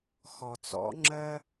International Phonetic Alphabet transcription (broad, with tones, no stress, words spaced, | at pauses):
xɔ˨t͡sɔ̰˨˦ŋ͡ǁɜ˦